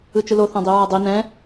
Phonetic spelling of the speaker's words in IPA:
ɯt͡ʃɯloθã dˤiɹadˤi nɛ̃

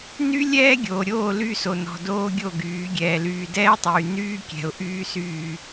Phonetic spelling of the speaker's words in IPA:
ny˦ lʲɛː˦ ɡʲoː˨ɾʲoː˦˨ ly˦˨so˨nɔ̤˨ doː˦ɡʲo˦˨ɡyː˨˦ ɡʲɛː˨lyː˨dɛː˦tˤyː˨ nyː˦ kʲɛ̤˨ʊ̯ ʔyː˦syː˦˨

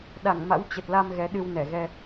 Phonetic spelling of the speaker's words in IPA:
ɗa˧˩ŋma̰˧˥w t͡ɕə˨˩t̚la˧m ɣɛ˨˦ɗɨ˧wnɛ˧˩ɣɛ˧

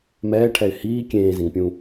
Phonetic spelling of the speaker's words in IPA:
mɛːʈʰɛɪ̯ hiː kʲẽːzẽŋpʲũ

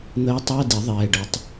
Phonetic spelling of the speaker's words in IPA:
n̪əː˧˥tˤæ˧˥˧di˨˩˦ ðˤɛː˧˥˧ɖə˧˥tˤ

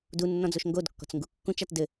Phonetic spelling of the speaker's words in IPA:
dunːɔ̃d͡zoʃ ŋɡodkːɔ̤t͡sŋɡu kːũt͡ʃat dɘ

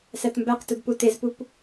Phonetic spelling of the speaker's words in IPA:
sætmbæqtud putezpup

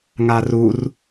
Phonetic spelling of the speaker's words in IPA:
ŋarur

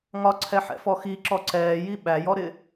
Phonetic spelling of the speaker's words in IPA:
ŋɒǀʰɛħɛ̰fɔ xiǁɔ ǀɛːji ɓæjɔɾɪ

